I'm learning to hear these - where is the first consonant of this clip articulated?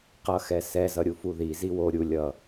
uvula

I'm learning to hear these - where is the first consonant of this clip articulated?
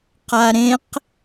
uvula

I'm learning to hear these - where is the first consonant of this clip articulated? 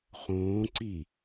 uvula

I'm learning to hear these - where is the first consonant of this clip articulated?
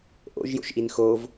throat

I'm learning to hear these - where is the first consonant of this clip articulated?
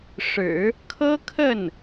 retroflex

